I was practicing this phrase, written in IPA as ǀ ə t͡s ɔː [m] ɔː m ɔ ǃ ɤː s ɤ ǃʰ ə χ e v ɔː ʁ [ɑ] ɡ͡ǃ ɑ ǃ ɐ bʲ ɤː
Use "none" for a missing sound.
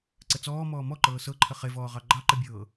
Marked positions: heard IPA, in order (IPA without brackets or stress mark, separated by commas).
m, ɑ